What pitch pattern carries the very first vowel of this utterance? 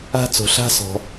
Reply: high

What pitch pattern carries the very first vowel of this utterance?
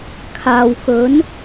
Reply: low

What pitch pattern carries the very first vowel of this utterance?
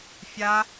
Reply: high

